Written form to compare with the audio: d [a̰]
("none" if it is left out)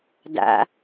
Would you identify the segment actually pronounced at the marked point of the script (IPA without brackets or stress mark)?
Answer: a̰